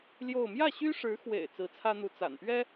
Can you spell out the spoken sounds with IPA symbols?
l j o˥˧ ʊ̯ m j ä˥˩ ɕ y˥ ʂ ɻ̩˧˥ x w ḛ˨˩ ɪ̯ t͡s ɹ̩˧˥ t͡sʰ ä˥ n̪ u˧˥ t͡s a̰˨˩ n p ɥ ɛ˥

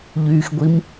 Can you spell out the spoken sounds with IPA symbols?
ʎ y x ɡʷ i m

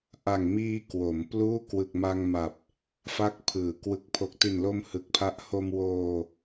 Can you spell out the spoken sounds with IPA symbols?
ʔ a˨˩ ŋ m iː˧ k w o˩˦ m p l uː˥˩ k w ɯ˨˩ k̚ m a˧ ŋ m a˨˩ p̚ | f a˦˥ k̚ pʰ ɯː˩˦ k w ɯ˨˩ k̚ pʰ o˨˩ k̚ t i˨˩ n l o˧ m h ɯ˨˩ k̚ pʰ a˦˥ ʔ h o˧ m w oː˧

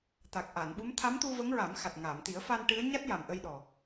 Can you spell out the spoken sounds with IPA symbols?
t̪ a˨˩ k̚ ʔ a˨˩˨ n ɓ u˧˥ m t̪ʰ a˧˥ m t̪ u˧ v ə˧˥ ŋ ɹ a˨˩˦ m x a˨˩ t̚ ŋ a˨˩˨ m t̪ i˨˩˦ ə̯ f a˧ n ʈ ɨ˧˥ ə̯ ɲ a˦˥ t̚ j a˨˩ m ʔ ə˧ j ɗ ɔ˨˩

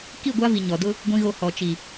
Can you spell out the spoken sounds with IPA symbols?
k i˦˨ ɡʷ a˦ v i˨ ɲ ɔ˨ d ʊ˦ | ɡʷ ĩ˨ ɣ o˨ h ɔ˨ t͡ʃ i˨

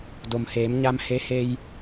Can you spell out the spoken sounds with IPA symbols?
d o˩ m h eː˩˧ m ɲ a˧ m h e˧˥ h e˧ j

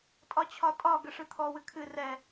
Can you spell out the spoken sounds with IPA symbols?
tʼ ɒ t͡ɕʰ ɒ tʼ ɒ ɡ ə ʂ ɨ t̪ʰ ɔ w ɨ kʰ ɨ r ɛ

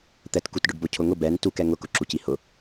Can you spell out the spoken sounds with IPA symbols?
t̪ ɛ t k u t ɖ ʊ ɖ b o cʰ ʊ ŋ ʊ b ɛ n t u k ɛ ŋ ʊ k ʊ ǁ u c i h ʊ

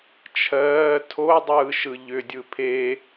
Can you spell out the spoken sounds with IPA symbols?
t͡ʃʰ ɜː tʰ o dˤ ɯː ʃ ɯ ʎ ʏ dʲ ɯ pʰ e

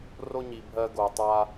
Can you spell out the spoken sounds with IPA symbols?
r o˧ ɲ i˩ bʱ ɜ˧ ɡ o˩ tˤ a˧

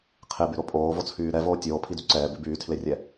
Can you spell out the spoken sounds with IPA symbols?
qʰ e b y ɾ o pʼ oː v o t͡sʰ yː ɾ ɛ v oː tʲ oː pʰ i d y ǀ ɛː b i b yː tʰ l e rʲ ɛ

